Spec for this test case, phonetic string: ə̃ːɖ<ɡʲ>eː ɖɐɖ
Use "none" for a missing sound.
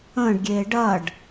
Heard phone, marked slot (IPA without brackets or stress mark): ɡʲ